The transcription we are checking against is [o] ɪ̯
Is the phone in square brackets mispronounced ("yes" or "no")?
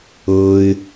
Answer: yes